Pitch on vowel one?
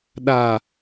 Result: low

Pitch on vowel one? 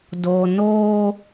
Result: low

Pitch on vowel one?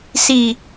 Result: low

